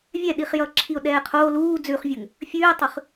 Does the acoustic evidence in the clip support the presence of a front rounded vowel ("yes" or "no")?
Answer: no